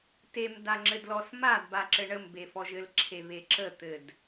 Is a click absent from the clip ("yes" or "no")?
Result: no